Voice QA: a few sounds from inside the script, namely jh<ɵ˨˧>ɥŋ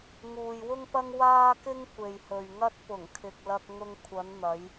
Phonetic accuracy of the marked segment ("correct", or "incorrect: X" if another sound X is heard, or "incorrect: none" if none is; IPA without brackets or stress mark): incorrect: ɵ˨